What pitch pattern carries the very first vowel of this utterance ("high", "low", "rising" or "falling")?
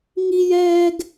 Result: high